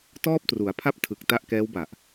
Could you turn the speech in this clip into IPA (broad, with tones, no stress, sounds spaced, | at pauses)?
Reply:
t ɔː˥˩ p̚ t r u˩˦ a̯ pʰ a˥˩ p̚ tʰ ɯ˨˩ k̚ t a˦˥ ʔ k ɛː˦˥ w b a˨˩ ʔ